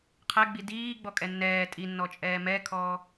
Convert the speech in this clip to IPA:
qʰ ɛ ɡ͡b i d iː ɡ͡b ɔ kʼ ɛ nː ɛː tʼ i nː ɔ t͡ʃʼ ɛː m ɛ kʰ ɔː

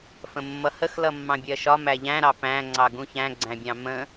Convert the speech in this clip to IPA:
f ə̃ mː ʌ h ə x l ʌ mː ɑ̃ bʲ ɜ ʃ ɒ m æ ʎ æ̃ ɾ ɑ p æ̃ ŋ͡ǀ ɑ ɡ ũ ç æ̃ ɡ͡ǀ æ̃ bʲ ɑ̃ m ə̃

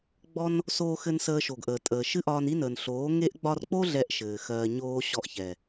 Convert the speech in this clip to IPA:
ɡ͡b ɔ˧ n | s oː˧ x ɘ˧ n s əː˧ ʃ o˨ ɡ ʔ əː˨ tʼ əː˨ ʃ ɨ˦ ʔ ɒː˧ n i˦ n əː˨ n ɬ oː˨˦ ŋ e˦ ʔ ɡ͡b ɒ˧ r k͡p o˦ ɮ ɛ˦ ʔ ʃ ɘː˨ x ɜː˧ ɲ oː˧ ɕ ɔ˧ ʔ ç ɛ˨

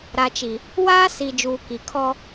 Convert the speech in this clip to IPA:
ɾ a˨ t͡ʃ i˨ | w aː˦ s i˨ d͡ʒ uː˨ k i˨ kʰ ɔ˦

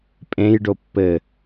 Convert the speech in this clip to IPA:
pʼ ẽ j ɖ o pː ɘ

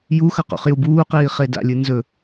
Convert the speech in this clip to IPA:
j u x ɐ q o̰ χ j u b uː q iː χ e d a̰ lʲ ɨ n z ɵ

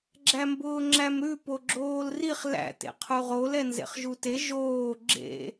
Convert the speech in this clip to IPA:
ɡ͡ǁ æ m b ʊː ŋ͡ǁ æ m ɾ ʉ p o ɡ͡ǁ oː l r i χ l æ̰ t ḛ qʰ u ʁ o l ɛ n z ḛ χ ʒ u t e ʒ oː ɡ͡ǁ ḛ

